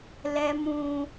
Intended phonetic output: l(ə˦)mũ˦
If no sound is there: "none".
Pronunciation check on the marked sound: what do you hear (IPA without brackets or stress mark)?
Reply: ɛ˦